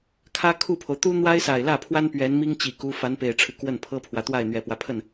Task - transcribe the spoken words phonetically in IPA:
kʰ ä˥ kʰ u˥˩ pʰ o˩ ʊ̯ t̪ u˥ n̪ w a˥ ɪ̯ s a˨˩ ɪ̯ l ä˥˩ pʰ w a˥ n p ɥ ɛ˧˥ n m i˥ ŋ t͡ɕ i˨˩ k u˧˥ f a˧˥ n p e˨˩ ɪ̯ ʈ͡ʂʰ ɻ̩˦ k w ə˥˩ n pʰ ɤ˥ pʰ w ä˨ t̪ w a˥˩ ɪ̯ n̪ ɥ ɛ˨˩ p w ä˦ pʰ ə˥˩ n

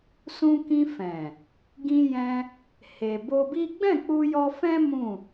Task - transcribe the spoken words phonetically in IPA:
s ũ˧ k ĩ˧ f ɛ̃˨ | ɡ ĩ˧ j ɛ̃˧ | h e˨ b o˧ b i˦ ɡ͡b ɛ̃˦˨ k͡p u˧ j ɔ˧ f ɛ̃˦ m ũ˦˨

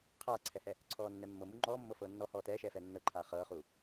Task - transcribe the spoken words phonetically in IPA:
qʰ aː ǀʰ ɛ h ɛ | ǀʰ ɔː nː ɛ mː ɤ m u ŋ͡ǃ ɔː mː ɤ f ɤː nː ɔ h ɔː t ɛː ʃ ɛː f ɛː nː ɤ ǃʰ aː χ ɤː χ uː

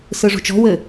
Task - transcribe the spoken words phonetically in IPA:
s ɯ ʐ ṳ t͡ʃ ɔ̤ w ɘ

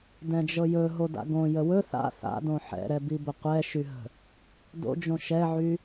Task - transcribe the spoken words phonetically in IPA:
d ɛ̃ d͡ʒ ɤ j ɵ ɦ o d a̰ ɡ õ j ə w ɵ θ a̰ θ a̰ d õ ħ ɛ̰ ɾ ɛ b i b ə qʷ ɛ ʃ y ɦ ə̤ | d o̰ d͡ʒ õ ʃ ɛ ʕ y

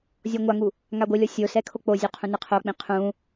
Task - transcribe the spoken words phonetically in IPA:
zʲ ɔ ŋʷ a ŋ u | ŋ a ɡʷ ɪ lʲ ɔ sʲ o s ɛ kʰ o k͡p o zʲ ɔ qʰ ũ n ɪ qʰ o k͡p ĩ qʰ ũ

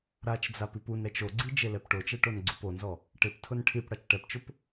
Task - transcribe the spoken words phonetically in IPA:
ɾ a t͡ʃ d͡z a p i p u n ɾ ɛ t͡ʃ o ɡ͡ǀ i d͡ʒ e l ɛ p ʈ o t͡ʃ ɛ ʈ o n ɡ͡ǀ u p o n z ɔ | ʈ ɪ p tʰ ʊ n ʈʰ i p ɽ a t͡ʃ ʈ ɛ p t͡ʃ ʊ p

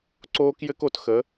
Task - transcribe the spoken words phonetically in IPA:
ǀ oː˦ k j ɘ˦ k o˨ t x ə˨˦

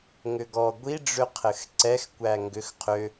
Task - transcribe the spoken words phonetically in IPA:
ŋ ʏ ɡ ɔ ɡʷ i ɖ͡ʐ ʏ qʰ ɘ x ǀ ɛ x kʷ æ ŋ ɡ ʏ x qʰ ʏ

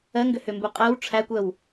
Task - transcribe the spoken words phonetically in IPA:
ɜ ŋ ɡ ʏ h ʏ m b u qʼ ɜ w ʈ͡ʂʰ æ kʷ ɜ w

